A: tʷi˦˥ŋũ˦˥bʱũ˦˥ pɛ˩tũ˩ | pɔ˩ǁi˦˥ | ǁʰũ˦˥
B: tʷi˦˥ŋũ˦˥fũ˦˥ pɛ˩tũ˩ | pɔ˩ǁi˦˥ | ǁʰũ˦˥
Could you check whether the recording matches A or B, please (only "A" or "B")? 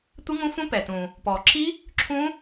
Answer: B